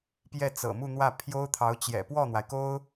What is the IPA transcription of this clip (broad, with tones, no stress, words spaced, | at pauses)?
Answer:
pjɛ˥˩t͡sɤ̰˨˩mu˥˧n̪wä˥˩ pʰjo˥ʊ̯t̪ʰɑ˧˥ʊ̯t͡ɕjɛ̰˨˩ pwɔ˥˩n̪wa˩ɪ̯ko˥ʊ̯